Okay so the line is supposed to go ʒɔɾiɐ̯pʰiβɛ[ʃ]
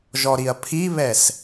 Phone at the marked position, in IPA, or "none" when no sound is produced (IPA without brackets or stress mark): s